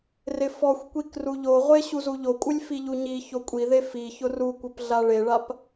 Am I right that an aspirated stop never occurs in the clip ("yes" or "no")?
yes